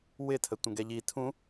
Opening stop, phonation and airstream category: aspirated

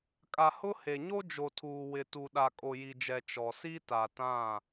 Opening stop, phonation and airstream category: ejective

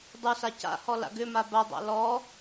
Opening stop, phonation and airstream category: plain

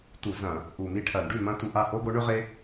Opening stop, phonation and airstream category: plain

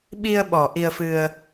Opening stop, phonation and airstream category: implosive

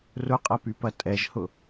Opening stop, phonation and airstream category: ejective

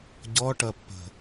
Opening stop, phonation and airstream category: plain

